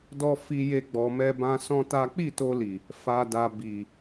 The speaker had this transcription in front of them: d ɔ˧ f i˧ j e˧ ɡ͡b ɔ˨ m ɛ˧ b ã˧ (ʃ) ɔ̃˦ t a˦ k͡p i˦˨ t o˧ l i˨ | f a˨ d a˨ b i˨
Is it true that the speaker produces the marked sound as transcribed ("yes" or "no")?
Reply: no